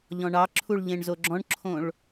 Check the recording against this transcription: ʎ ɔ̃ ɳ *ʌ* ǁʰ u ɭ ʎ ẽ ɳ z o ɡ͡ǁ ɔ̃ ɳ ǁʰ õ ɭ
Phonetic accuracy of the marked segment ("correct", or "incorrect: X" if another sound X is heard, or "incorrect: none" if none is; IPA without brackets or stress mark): incorrect: ɑ